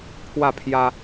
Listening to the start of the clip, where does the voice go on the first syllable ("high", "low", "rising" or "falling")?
falling